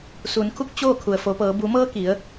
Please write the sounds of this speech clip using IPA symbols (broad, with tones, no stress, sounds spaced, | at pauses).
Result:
s uː˩˧ n kʰ u˥˨ k̚ t͡ɕ oː˥˨ kʰ u˩ ə̯ f o˩˧ p ɤː˩˧ b u˩˧ m ɤː˧ k i˩˧ ə̯